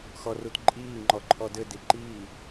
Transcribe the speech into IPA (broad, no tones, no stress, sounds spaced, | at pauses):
x ɔ r u t ǃʼ iː ŋ͡ǃ ɔ ǃʰ ɔ d ɘ d i ǃ iː